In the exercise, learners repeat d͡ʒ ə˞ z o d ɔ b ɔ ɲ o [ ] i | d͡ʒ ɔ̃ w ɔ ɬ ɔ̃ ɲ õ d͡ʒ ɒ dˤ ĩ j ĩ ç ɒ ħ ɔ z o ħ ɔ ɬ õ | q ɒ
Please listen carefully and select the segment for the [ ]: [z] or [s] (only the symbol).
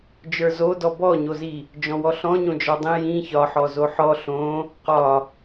z